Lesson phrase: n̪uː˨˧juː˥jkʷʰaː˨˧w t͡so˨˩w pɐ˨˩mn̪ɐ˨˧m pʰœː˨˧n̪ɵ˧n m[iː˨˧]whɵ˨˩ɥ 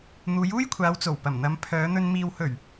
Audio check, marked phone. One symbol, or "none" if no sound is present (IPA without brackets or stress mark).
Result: iː˨